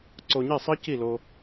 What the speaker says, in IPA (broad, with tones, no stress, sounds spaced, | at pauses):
ǀ o˧ ɲ i˥˩ sˤ ə˥ c i˥˩ l o˧